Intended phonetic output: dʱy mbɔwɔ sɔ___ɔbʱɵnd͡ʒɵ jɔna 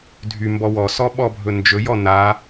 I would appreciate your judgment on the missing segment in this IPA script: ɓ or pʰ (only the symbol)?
ɓ